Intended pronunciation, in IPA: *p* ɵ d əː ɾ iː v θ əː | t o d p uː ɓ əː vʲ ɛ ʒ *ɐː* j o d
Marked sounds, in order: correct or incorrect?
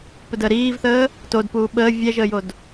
correct, incorrect: əː

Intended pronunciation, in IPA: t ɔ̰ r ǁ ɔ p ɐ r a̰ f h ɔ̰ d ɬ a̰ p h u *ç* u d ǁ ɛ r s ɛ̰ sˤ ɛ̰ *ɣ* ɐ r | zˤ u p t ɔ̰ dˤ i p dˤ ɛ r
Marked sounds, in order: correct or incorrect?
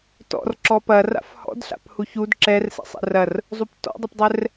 correct, incorrect: r

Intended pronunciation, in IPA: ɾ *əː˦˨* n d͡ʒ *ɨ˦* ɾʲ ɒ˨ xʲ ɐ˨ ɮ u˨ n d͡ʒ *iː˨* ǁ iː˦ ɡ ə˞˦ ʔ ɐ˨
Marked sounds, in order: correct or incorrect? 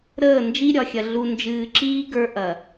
correct, incorrect: i˦, incorrect: ɨː˨

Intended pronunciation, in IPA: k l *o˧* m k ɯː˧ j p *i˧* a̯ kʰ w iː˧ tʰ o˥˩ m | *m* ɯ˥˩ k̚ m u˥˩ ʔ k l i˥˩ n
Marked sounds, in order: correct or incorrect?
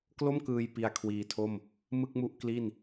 incorrect: o˥˩, correct, correct

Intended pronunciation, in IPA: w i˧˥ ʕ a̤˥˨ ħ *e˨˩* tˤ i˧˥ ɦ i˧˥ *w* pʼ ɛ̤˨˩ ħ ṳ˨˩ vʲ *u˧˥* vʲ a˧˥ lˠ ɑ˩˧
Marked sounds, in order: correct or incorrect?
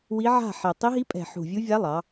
correct, incorrect: none, correct

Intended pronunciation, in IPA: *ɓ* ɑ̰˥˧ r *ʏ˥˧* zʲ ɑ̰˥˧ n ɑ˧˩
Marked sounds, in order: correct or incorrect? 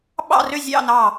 correct, correct

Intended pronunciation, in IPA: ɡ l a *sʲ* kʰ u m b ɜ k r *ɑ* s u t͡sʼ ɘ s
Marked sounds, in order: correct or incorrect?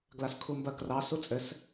incorrect: s, correct

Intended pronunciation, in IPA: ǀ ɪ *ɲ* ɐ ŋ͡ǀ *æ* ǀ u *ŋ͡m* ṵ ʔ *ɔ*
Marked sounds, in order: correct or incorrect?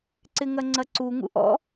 incorrect: ŋ, incorrect: ɐ, incorrect: ŋ, incorrect: ɔ̰

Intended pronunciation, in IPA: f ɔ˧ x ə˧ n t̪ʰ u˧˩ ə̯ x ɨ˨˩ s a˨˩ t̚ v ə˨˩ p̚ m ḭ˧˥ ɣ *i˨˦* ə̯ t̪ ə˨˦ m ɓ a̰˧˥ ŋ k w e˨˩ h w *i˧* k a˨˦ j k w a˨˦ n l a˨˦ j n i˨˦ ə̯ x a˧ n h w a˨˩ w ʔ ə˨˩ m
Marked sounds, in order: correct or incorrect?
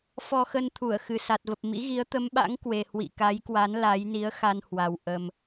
correct, incorrect: ḭ˧˨

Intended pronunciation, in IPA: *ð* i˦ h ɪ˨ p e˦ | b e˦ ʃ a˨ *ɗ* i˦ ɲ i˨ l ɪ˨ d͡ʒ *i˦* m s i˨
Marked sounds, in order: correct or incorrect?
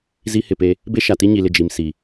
incorrect: z, incorrect: t, incorrect: i˨

